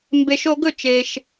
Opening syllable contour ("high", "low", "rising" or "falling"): low